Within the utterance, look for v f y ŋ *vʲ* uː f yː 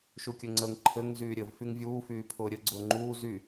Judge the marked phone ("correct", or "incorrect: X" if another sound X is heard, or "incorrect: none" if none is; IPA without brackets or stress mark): correct